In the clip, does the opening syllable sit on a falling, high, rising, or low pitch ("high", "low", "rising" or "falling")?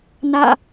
falling